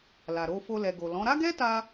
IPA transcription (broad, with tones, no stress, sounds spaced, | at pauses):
l a˨ ɾ o˧ f o˧ l ɛ˨ ɡ o˨ l ɔ̃˨˦ ɾ a˦ ɡ ɛ˦ t a˧